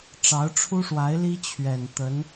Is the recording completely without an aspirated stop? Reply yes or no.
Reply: no